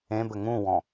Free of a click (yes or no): yes